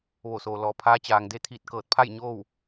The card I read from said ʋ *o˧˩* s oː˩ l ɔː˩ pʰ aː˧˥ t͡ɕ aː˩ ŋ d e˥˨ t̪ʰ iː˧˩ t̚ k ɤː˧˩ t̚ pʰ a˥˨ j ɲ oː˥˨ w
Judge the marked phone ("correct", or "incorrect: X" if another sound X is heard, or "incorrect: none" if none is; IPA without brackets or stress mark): correct